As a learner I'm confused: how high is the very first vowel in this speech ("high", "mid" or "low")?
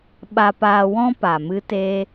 low